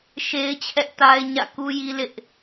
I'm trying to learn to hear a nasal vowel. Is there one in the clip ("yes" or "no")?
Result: no